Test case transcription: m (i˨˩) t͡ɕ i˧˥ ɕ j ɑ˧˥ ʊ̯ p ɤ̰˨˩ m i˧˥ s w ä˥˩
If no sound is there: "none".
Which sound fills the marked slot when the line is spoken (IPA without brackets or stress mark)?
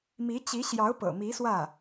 i˧˥